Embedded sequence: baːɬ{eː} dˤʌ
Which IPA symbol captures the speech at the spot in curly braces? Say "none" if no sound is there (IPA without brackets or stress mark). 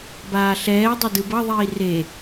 ɛː